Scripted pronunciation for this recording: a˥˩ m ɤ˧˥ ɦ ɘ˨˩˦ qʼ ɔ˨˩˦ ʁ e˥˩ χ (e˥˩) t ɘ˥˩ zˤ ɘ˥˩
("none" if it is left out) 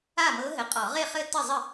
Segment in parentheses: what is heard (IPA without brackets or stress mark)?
ɘ˥˩